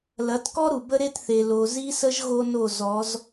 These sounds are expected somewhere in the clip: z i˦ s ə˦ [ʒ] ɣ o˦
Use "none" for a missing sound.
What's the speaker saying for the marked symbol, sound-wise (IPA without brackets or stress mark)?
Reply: ʒ